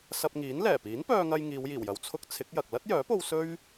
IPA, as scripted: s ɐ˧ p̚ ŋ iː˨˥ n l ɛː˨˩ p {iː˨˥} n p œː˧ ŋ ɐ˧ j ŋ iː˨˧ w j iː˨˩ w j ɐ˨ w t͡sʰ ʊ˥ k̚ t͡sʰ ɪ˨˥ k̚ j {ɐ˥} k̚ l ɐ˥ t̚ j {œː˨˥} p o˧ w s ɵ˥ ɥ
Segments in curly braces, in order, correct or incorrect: correct, incorrect, correct

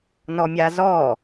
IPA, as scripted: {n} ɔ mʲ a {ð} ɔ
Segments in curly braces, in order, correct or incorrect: correct, incorrect

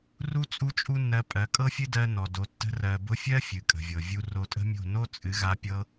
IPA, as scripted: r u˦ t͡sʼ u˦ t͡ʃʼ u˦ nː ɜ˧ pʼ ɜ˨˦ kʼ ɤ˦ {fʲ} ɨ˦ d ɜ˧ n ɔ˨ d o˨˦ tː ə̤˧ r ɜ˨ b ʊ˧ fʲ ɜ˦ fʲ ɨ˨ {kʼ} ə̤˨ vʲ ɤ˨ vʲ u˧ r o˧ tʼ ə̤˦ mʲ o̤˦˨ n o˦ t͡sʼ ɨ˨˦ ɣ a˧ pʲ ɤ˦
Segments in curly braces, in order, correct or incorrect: correct, correct

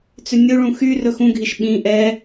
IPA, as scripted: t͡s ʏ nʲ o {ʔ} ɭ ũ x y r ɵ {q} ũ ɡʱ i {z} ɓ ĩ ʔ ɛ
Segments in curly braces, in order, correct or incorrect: incorrect, incorrect, incorrect

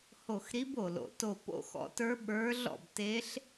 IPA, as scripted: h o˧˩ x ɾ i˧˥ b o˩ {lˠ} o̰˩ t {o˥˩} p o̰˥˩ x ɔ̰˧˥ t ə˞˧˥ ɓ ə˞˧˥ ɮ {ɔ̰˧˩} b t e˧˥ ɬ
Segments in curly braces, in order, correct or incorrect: incorrect, incorrect, incorrect

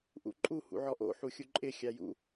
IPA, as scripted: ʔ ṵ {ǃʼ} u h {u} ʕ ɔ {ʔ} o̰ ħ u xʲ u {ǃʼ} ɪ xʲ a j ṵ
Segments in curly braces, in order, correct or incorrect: correct, incorrect, correct, correct

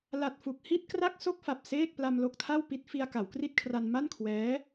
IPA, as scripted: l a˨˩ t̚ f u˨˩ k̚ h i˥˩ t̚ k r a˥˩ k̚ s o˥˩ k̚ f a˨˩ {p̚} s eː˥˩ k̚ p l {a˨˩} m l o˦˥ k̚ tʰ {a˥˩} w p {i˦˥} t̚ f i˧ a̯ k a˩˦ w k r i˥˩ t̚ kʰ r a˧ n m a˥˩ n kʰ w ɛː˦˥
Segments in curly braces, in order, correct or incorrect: correct, incorrect, correct, correct

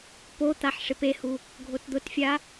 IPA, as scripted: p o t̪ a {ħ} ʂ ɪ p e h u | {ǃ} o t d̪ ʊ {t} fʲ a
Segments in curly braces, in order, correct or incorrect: correct, incorrect, correct

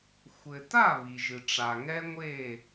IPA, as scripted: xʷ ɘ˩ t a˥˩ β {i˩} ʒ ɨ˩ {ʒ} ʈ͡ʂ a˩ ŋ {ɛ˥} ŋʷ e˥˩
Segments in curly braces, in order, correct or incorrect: correct, incorrect, correct

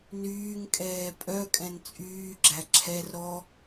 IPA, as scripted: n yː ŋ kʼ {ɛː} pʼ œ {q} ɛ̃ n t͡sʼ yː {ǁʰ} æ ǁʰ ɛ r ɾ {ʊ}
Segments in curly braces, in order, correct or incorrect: correct, incorrect, incorrect, incorrect

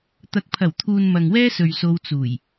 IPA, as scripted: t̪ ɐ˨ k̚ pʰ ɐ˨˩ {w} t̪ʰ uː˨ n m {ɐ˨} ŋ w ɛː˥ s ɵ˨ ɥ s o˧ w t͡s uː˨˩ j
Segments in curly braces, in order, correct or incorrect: correct, correct

